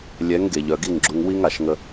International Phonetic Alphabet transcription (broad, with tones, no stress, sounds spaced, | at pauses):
lʲ ɛ˨˦ ŋ ɡ e˨ ʎ œ˨ ɡ i˦˨ ŋ ɡ͡ǁ u˧ ŋ w i˦ ŋ a˨ ʃ ŋ ə˧